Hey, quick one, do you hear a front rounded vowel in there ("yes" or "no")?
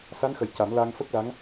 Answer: no